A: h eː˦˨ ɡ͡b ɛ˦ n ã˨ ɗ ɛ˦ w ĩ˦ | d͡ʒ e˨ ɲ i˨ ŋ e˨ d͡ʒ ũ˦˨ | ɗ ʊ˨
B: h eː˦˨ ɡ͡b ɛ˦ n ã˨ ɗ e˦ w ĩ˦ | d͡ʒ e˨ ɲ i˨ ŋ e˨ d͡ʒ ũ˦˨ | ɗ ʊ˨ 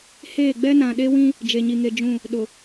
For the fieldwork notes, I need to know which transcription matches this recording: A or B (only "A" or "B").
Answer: B